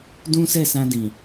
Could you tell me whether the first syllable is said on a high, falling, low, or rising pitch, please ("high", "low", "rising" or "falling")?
high